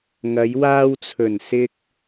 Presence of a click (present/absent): absent